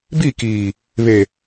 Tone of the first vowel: falling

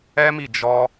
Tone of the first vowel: high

